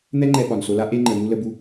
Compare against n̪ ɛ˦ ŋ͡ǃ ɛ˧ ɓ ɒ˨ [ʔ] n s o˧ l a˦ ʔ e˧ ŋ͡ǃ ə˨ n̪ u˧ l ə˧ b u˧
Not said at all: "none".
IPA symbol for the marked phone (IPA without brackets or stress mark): none